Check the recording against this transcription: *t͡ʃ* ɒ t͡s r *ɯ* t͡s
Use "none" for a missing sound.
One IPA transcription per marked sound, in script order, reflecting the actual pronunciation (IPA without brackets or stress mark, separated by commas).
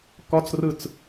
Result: k, ɯ